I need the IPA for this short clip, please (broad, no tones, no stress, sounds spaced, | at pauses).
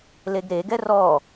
l e ɡ ɾ e ɡ ɛ r ɔ